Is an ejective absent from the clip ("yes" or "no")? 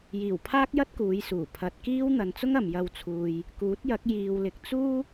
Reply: yes